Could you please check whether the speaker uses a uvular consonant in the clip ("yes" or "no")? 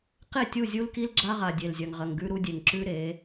yes